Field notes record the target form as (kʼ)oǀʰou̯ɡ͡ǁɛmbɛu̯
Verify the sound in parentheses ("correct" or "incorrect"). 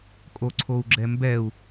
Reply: correct